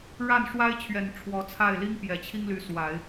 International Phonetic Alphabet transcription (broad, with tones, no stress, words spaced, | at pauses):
ɻa˥˩nʂwa˥ɪ̯t͡ɕʰɥɛ˨˩n ʈ͡ʂʰwɔ˧˥t͡sʰa˥˩ɪ̯ li˥ŋpjɛ˨˩t͡ɕʰi˥ŋly˧˥ swa˨˩˦ɪ̯